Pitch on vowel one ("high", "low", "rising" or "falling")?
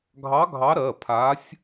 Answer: rising